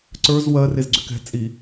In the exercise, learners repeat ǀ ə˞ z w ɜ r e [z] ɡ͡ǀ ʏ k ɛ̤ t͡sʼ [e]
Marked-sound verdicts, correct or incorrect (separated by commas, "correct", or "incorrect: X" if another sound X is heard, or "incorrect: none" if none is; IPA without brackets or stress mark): correct, incorrect: i